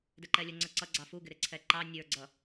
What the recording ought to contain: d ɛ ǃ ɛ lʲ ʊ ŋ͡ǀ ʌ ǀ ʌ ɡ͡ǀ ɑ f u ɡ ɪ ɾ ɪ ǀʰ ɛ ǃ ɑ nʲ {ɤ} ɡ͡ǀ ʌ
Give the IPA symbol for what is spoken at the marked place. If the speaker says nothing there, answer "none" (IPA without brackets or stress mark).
ə˞